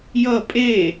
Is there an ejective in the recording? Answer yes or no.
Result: yes